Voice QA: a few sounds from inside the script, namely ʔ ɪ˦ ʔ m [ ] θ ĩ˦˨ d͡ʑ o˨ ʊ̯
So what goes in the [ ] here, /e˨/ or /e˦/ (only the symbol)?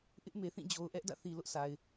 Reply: e˨